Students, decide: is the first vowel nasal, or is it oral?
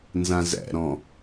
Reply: nasal